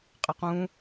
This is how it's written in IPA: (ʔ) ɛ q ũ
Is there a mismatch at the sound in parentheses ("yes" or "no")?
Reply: yes